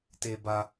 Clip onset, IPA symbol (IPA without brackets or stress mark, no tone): t